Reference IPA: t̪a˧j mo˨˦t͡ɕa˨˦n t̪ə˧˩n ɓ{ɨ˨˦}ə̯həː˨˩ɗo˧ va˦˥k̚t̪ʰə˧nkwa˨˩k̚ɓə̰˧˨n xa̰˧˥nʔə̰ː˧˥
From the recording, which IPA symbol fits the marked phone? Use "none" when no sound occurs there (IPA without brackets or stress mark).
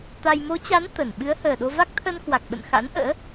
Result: ɨ˨˦